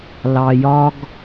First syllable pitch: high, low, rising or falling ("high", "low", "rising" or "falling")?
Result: low